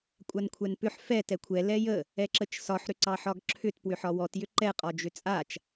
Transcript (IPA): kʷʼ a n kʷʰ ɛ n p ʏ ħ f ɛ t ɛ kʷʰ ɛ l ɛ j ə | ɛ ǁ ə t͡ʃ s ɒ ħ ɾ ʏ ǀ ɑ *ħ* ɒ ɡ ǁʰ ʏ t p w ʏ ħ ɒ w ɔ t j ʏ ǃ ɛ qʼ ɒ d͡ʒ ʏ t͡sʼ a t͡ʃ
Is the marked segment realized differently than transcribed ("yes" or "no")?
no